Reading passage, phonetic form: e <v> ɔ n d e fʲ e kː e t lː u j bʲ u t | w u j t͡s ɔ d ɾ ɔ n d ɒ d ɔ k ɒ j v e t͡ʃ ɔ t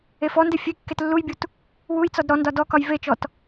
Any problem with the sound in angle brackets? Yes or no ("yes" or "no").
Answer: yes